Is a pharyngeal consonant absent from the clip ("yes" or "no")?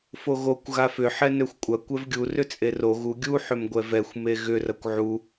no